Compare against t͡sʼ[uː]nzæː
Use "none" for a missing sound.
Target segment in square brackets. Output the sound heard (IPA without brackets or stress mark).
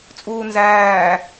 uː